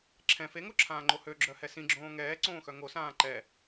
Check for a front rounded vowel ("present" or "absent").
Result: present